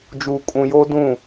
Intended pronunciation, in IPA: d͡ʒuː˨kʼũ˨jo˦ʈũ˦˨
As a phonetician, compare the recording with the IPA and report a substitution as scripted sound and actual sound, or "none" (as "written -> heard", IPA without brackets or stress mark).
ʈ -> d